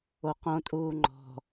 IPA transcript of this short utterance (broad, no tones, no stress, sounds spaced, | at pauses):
o q õ tʼ uː ŋ͡ǃ ɔ̤